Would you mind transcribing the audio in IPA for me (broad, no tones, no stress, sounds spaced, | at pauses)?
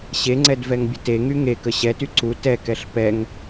ɕ e ŋ͡ǀ ɛ d v ɛ ŋ bʲ ə t e ŋ y ŋ e k ə ɕ ɛ t y ǀ u t ɛ k ɛ ɬ p ɛ ŋ